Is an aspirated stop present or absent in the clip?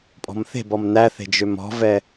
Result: absent